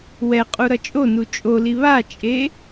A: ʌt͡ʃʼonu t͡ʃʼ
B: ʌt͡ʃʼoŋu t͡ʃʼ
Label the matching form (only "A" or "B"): A